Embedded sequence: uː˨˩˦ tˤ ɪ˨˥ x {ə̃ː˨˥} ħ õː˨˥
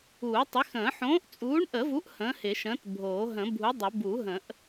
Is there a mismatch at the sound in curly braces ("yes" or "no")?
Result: yes